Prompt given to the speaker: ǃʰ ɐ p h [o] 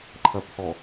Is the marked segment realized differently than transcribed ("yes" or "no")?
yes